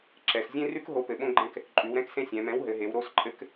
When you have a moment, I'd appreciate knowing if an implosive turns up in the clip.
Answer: yes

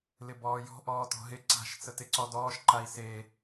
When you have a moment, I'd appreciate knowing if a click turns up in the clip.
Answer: yes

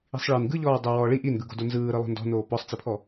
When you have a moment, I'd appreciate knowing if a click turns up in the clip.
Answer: no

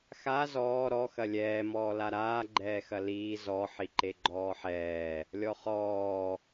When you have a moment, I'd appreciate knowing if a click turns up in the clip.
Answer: yes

